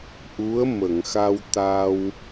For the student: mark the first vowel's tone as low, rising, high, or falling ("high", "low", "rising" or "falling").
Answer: rising